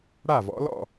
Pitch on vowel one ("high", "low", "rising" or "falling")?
falling